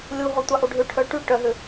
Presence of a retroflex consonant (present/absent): present